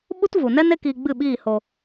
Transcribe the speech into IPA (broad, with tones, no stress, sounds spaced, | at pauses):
ɓ u˦ t v u˨ n ɛ˦ n e˦ k iː˧ ɡ͡b ɨ˦˨ ɓ iː˦˨ h o˧